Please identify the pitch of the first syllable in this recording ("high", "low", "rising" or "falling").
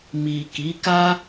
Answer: low